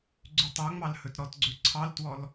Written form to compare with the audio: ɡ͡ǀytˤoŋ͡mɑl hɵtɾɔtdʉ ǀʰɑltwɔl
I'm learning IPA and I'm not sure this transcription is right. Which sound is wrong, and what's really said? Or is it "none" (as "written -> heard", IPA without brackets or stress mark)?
d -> ɡ͡ǀ